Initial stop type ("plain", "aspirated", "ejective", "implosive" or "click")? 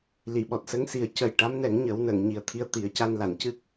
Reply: implosive